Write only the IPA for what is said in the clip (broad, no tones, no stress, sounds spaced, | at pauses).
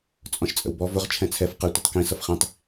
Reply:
t͡sʼ ɔ̃ ʃ t͡sʼ ə̰ w b ɔ v ʊ ʁ t͡ʃʰ ɛ̃ t͡sʰ ɛ f q ɛ tʷ ə tˤ k ĩ s ʌ f χ ĩ tˤ